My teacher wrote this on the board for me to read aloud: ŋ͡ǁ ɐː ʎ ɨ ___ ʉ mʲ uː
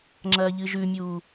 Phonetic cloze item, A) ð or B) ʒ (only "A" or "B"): B